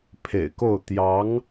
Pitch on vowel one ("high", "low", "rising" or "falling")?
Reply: low